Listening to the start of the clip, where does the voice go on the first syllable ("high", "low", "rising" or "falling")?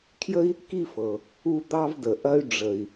high